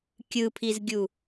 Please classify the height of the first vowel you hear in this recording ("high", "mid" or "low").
high